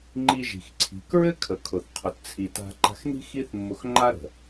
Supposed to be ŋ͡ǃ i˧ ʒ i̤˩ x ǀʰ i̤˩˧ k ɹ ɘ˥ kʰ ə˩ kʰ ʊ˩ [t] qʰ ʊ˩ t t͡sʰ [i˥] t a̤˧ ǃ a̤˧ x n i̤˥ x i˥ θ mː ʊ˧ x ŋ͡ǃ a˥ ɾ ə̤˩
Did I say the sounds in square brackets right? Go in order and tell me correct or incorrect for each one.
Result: incorrect: θ, incorrect: i˩

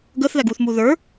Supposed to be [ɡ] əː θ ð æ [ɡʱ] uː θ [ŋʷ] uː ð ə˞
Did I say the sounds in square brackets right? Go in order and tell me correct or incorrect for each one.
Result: correct, incorrect: ɡ, incorrect: m

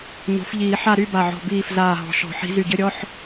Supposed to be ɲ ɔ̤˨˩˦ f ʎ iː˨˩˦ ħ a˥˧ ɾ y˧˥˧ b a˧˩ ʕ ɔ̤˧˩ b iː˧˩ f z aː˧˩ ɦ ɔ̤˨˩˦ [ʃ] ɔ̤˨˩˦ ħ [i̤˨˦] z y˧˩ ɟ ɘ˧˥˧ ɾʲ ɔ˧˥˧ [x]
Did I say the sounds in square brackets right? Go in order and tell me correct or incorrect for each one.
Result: correct, correct, incorrect: ħ

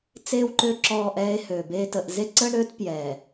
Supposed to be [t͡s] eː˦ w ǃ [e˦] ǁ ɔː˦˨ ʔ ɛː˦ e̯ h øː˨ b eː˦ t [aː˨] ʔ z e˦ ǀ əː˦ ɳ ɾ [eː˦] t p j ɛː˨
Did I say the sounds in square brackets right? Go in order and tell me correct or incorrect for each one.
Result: correct, incorrect: ø˦, incorrect: əː˨, incorrect: øː˦

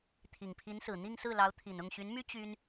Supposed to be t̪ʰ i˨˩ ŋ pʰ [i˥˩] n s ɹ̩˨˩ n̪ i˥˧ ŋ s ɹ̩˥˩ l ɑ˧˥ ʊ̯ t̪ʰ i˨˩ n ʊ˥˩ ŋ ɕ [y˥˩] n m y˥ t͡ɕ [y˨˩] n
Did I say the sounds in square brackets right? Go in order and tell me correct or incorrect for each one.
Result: incorrect: i˧˥, incorrect: y˧˥, incorrect: y˥

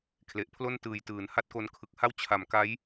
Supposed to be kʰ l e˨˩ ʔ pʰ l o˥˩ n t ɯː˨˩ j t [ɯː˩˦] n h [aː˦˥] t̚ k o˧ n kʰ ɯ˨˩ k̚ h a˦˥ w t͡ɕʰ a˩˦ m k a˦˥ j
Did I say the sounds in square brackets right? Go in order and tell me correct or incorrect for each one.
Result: correct, incorrect: a˦˥

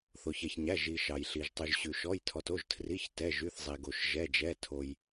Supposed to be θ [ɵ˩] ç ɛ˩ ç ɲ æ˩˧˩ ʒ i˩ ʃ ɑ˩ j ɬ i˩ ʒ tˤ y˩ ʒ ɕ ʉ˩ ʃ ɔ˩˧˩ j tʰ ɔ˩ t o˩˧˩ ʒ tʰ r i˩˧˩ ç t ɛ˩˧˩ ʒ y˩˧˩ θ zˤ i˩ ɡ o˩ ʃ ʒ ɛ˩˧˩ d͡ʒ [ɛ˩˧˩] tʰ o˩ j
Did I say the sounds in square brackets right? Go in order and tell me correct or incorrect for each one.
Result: incorrect: o˩, correct

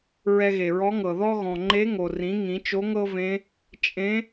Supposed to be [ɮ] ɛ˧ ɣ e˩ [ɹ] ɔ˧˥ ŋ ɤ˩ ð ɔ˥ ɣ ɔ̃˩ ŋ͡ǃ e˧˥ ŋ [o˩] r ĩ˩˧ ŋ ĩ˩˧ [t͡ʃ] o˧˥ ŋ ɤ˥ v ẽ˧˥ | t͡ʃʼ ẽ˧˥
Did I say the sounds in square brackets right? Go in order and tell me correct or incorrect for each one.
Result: incorrect: ɹ, correct, correct, correct

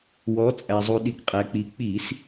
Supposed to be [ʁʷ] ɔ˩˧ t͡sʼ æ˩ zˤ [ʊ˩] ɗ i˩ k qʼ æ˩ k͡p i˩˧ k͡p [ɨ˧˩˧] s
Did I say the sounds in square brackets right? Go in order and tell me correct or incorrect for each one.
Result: incorrect: w, incorrect: u˩, incorrect: i˧˩˧

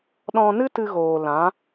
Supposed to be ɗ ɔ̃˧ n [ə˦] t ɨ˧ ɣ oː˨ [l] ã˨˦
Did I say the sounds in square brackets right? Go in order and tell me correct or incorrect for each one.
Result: incorrect: ɨ˦, correct

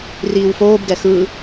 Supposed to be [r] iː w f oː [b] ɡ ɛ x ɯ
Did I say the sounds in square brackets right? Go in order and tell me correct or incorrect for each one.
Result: correct, correct

